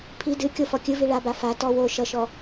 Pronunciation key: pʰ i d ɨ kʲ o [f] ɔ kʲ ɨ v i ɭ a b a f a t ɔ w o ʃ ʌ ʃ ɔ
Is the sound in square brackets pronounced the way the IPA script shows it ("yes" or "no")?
yes